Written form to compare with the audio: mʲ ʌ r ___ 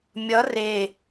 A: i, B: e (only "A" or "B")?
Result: B